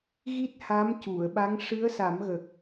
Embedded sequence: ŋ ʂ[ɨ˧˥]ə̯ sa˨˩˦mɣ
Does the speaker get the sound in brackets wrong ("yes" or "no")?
no